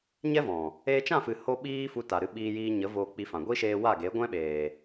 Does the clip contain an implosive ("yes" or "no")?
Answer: yes